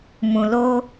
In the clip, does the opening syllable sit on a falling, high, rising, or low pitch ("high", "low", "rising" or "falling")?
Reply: low